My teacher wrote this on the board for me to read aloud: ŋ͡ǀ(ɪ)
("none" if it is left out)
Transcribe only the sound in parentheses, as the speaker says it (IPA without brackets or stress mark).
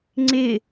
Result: ɪ